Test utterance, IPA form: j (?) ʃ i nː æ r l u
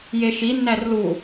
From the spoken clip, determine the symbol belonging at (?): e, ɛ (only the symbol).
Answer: e